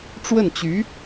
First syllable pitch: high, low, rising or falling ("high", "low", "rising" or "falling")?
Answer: falling